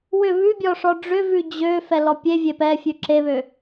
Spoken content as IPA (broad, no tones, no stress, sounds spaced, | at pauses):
w ʏ β ʉ bʲ ɔ ʂ ɔ ɖ͡ʐ ʏ v ʉ d͡ʑ ø f ɛ l ɔ pʲ e vʲ e p ɛ fʲ ʉ ǁ e β ø